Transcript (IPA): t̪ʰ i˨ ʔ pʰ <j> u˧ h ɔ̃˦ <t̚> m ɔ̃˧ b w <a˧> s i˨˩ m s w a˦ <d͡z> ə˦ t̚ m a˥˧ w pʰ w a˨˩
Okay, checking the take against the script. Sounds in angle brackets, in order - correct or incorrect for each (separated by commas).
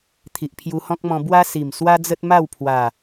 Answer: correct, incorrect, incorrect, correct